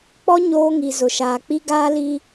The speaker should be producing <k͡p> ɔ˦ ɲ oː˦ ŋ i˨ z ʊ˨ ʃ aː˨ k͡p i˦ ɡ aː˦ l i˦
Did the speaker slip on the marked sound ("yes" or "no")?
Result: no